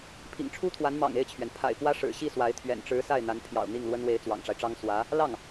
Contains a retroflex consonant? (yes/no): yes